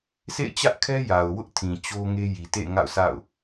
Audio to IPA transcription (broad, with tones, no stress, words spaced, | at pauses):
sʰḛ˦˨ɪ̯t͡ɕä˦ʔkʰɛ˦ ja˨ʊ̯wʊ˦ʔtʰĩ˨ t͡ɕo˦ŋe˦ ji˨tḛ˦˨ŋa̰˦˨ʊ̯ sʰa̰˦˨ʊ̯